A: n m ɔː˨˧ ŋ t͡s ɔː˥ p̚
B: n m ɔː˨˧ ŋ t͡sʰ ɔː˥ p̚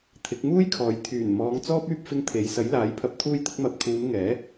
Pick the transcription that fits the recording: A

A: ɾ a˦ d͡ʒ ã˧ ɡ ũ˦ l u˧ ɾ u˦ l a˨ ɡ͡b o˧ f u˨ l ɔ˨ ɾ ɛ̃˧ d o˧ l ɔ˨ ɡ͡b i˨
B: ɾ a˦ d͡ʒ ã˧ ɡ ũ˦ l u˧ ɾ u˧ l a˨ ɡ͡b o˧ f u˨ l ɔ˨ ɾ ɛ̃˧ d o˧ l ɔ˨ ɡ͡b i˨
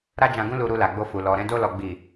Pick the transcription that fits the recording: B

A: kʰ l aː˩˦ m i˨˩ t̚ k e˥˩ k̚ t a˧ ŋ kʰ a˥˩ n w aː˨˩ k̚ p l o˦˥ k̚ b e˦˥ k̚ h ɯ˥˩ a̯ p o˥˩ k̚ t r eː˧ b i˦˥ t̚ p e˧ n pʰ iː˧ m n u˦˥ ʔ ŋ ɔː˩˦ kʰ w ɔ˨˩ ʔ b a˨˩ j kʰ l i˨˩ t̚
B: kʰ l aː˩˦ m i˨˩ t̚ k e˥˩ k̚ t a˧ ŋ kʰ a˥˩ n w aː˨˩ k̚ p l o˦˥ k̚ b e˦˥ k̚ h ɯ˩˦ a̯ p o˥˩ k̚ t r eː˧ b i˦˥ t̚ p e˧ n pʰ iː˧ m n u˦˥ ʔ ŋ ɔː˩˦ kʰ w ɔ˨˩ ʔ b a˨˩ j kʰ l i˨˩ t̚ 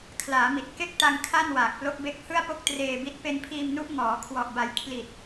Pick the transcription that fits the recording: A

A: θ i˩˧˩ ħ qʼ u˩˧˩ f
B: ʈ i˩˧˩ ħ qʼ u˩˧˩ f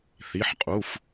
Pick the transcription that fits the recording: A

